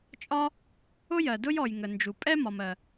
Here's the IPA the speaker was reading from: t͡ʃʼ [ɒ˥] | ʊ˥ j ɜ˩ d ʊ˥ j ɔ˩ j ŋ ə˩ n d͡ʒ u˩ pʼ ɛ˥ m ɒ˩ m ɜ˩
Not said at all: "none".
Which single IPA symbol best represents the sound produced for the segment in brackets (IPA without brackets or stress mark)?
ɒ˥